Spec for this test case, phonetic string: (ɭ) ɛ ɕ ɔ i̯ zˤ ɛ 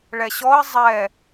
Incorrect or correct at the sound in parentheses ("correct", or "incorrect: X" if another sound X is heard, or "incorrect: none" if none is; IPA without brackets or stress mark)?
correct